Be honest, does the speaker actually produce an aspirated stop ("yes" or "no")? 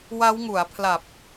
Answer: yes